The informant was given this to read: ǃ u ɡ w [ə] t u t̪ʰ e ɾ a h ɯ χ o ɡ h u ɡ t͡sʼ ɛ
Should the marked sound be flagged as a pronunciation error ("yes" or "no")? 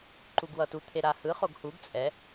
yes